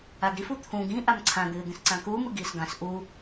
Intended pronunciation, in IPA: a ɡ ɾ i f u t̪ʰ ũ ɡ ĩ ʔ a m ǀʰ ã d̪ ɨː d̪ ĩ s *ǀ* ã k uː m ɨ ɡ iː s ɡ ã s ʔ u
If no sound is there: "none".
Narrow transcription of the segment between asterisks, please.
ǀ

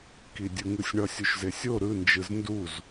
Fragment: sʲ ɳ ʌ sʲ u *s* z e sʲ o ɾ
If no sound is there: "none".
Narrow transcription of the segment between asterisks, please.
ʃ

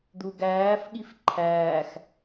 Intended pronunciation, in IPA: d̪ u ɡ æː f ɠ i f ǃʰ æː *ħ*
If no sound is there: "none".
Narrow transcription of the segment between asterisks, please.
x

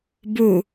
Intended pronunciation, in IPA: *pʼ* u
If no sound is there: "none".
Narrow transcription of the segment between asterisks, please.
b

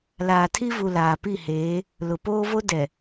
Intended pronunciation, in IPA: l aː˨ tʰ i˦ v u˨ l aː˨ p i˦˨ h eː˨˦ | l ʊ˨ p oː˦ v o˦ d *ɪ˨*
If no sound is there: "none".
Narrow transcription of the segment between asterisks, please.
ɛ˨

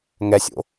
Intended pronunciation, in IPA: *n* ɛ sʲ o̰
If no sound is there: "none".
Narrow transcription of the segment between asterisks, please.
ŋ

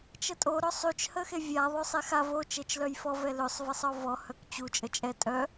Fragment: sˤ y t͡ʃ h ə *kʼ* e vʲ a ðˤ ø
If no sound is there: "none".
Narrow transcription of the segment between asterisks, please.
x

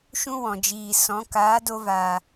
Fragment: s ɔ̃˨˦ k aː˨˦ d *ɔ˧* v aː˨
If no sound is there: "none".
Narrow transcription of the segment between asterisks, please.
o˧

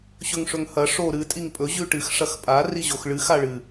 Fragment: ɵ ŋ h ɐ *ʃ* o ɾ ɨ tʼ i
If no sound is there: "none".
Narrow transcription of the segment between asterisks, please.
ʂ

